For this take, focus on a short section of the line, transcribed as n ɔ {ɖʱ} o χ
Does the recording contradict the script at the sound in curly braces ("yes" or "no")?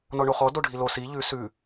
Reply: yes